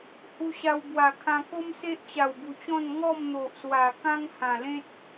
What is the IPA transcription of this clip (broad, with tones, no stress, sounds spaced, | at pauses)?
h u˧ ɕ a˧ w b w a˨˩ kʰ ã˧ k o˦ m s e˦ ʔ t͡ɕ a˨˩ w b u˨˩ t͡ɕ ɔ̃˥˧ n ŋ ɔ˥˧ m n̪ o˨ ʔ s w a˨˩ k ã˦ ŋ h ã˨˩ l ẽ˦ t̚